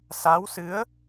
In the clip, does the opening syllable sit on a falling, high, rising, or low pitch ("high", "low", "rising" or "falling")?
rising